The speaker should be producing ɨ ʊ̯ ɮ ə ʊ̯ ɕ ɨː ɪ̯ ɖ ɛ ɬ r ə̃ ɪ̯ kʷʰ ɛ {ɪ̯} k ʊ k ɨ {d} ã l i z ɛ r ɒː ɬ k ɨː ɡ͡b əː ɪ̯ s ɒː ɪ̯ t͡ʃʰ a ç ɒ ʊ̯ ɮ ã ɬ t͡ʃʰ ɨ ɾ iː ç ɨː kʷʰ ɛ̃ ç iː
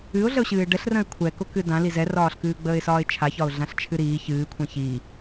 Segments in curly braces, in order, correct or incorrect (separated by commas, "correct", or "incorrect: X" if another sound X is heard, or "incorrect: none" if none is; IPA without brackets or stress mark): incorrect: none, correct